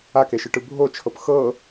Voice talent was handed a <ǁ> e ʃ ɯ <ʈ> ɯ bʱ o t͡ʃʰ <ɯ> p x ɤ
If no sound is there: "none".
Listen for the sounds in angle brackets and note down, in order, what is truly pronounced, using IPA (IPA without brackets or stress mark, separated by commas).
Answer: k, ʈ, ɤ